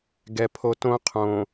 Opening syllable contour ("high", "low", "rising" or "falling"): low